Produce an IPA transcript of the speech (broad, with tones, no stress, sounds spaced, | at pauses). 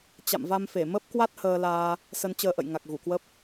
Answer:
t͡ɕ a̰˧˨ m v a˧ m f e˧˩ m ə˦˥ p̚ k w a˦˥ t̚ h əː˧ l aː˧ | s ə˧ n t͡ɕ əː˧ ʔ ə̰˧˨ j ŋ a˨˩ k̚ ɣ u˧˩ k w ə˦˥ p̚